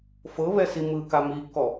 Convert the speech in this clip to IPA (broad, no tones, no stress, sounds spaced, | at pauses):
f ɤ β ɛ s i m ɯ k a m i kː ɔ